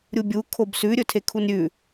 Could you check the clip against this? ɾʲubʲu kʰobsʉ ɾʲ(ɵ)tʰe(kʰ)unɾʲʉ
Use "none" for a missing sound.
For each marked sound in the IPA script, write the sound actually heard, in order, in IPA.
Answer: ɵ, kʰ

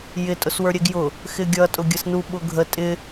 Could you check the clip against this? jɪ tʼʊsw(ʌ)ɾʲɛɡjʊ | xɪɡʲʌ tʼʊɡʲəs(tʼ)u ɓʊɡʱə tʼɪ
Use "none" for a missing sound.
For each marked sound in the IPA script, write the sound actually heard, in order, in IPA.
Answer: ə˞, n

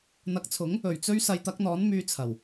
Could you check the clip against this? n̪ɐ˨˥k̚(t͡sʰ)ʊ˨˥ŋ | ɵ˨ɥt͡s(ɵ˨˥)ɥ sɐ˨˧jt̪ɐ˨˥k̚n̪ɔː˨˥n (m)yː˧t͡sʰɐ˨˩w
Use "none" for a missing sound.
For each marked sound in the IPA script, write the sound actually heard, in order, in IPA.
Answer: t͡sʰ, ɵ˥, m

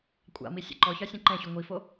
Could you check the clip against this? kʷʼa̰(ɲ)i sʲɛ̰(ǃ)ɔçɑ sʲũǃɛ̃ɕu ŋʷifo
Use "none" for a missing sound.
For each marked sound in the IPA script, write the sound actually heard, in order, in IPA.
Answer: m, ǃ

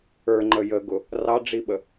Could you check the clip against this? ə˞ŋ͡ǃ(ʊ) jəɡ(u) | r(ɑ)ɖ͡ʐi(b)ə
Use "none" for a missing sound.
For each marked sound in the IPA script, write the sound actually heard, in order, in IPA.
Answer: ə, ʊ, ɑ, ɓ

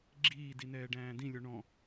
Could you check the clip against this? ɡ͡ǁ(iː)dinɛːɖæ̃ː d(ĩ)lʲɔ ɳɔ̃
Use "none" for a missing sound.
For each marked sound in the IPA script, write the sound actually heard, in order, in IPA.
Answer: iː, ĩ

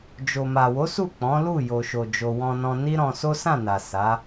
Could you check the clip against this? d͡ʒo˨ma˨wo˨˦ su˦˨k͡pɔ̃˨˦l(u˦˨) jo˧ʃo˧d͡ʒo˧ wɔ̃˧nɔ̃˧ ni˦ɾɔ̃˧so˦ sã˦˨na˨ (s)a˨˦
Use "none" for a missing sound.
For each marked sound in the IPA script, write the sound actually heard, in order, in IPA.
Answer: u˦˨, s

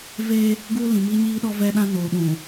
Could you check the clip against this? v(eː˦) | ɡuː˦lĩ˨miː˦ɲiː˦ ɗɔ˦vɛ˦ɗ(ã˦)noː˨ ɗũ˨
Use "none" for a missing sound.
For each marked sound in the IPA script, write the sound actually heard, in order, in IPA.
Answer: eː˦, ã˦

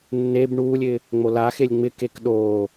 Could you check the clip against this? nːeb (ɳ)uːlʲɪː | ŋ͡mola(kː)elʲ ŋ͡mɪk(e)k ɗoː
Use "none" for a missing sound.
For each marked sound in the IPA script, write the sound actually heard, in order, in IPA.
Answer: ɳ, x, e

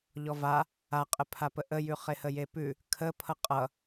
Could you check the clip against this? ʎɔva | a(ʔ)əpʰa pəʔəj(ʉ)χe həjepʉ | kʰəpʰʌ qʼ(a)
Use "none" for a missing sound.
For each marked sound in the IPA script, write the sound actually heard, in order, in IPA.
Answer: qʼ, ʉ, ʌ

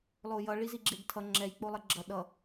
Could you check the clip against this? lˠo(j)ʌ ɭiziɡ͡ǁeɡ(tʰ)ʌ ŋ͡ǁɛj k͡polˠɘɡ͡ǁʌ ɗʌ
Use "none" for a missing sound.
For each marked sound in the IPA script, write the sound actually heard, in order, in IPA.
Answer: j, tʰ

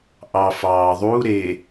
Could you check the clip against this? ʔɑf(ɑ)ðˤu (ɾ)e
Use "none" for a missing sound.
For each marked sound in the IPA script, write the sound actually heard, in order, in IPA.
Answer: ɑː, ɾ

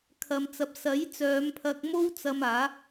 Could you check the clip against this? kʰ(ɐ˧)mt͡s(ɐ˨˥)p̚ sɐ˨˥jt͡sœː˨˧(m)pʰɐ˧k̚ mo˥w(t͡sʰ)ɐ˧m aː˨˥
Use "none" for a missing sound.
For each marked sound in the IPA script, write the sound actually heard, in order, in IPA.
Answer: ɐ˨, ɐ˨˥, m, t͡s

